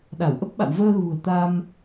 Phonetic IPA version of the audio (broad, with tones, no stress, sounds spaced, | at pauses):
ɗ a˧˩ w ʔ ə˦˥ p̚ ɓ a̰˧˨ w v əː˧ ɣ ṳ˨˩ ə̯ t̪ a˧ m